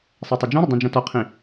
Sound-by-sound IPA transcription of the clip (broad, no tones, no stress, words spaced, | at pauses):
sˤetˤəd͡ʒũɾə dˤũd͡ʒɔ̃tɔqʰĩ